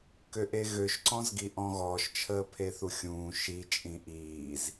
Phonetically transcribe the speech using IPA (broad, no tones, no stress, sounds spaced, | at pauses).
k ø ʔ e ɣ ø ʃ ǀ ɔ̃ z ɡ i ʔ ɔ̃ ɣ ɔː ʃ t͡ʃʰ əː pʰ e θ u xʲ ũː ʃ i t͡ʃʼ ĩ ʔ iː z